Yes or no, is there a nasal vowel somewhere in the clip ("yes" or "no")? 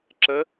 no